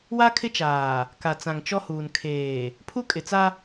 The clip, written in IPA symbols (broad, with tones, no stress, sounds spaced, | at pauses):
w a˦ kʰ ɪ˦ t͡ʃ aː˨ | k a˨ t͡s ã˨ ŋ t͡ʃ ɔ˦ h uː˨ n kʰ eː˨ | pʰ u˦ kʼ ɪ˨ t͡s a˦